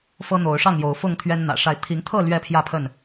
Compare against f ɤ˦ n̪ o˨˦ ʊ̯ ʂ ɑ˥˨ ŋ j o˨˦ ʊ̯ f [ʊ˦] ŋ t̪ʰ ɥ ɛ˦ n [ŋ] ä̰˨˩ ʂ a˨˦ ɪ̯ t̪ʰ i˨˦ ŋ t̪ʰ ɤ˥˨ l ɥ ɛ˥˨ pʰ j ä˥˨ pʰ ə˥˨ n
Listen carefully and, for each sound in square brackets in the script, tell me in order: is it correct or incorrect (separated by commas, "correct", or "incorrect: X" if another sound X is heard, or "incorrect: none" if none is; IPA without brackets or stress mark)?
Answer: incorrect: ʊ˥˨, incorrect: n̪